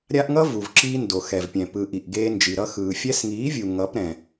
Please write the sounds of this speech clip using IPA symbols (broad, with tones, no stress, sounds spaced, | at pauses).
ɾʲ a˦ ʔ ŋ ʌ˦ v u˨ v ǁ iː˧ n d o˨ x ɛ˨ v pʲ ɛ̃˨ p ɯ˨ ʔ i˨ ʔ ɡ eː˧ n d͡ʒ i˨ ɾ ʌ˧ x ɯː˨ fʲ ɛ˧ s ŋ iː˨˦ vʲ u˨ ŋ ʌ˨˦ p ɾ ɛ̃˨